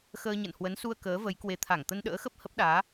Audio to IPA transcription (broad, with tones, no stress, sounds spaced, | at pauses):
x əː˧ ɲ ə̰˧˨ n h w ə˨˦ n s u˧ ə̯ k əː˨˦ v ə˨˦ j k w e˨˦ t̪ʰ a˧˩ ŋ t̪ ə˧ n ɗ ə̰ː˧˥ x ə˦˥ p̚ h ə˦˥ p̚ ɗ aː˨˦